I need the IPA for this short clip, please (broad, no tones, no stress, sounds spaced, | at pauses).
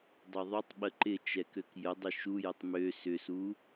dˤ ø ðˤ u tˤ ɓ ə ǃ ɪ t͡ʃ ɛ k ø k j ə dˤ ɪ ʃ u j ə tˤ m ø s ʏ s u